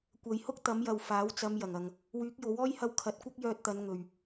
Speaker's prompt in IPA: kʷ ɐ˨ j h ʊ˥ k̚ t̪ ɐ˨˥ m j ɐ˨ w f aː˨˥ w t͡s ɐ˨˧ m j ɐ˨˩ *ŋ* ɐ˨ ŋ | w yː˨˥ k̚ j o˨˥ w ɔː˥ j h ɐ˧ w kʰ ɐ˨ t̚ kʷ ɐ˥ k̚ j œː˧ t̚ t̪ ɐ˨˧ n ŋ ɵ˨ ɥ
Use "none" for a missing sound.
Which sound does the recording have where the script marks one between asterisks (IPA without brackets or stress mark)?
ŋ